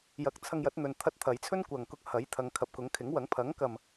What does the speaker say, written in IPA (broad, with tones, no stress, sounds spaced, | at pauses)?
j ɐ˨˥ k̚ t͡sʰ ɐ˧ ŋ j ɐ˨˥ t̚ n̪ ɵ˨ n t̪ʰ ɐ˧ t̚ t̪ʰ ɐ˨˧ j t͡sʰ ɵ˥ n kʷ ɐ˨ ŋ k ʊ˧ k̚ h ɐ˨˥ j t̪ʰ ɐ˨˧ ŋ kʰ ɐ˨ p̚ k ʊ˨˥ ŋ kʰ ɪ˨˥ ŋ w ɐ˨˥ ŋ pʰ ɐ˨˥ ŋ k ɐ˨ m